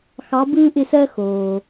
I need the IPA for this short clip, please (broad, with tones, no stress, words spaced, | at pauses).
xɑ˨˦bɯː˦ʔɪ˦˨sɜ˦ xoː˨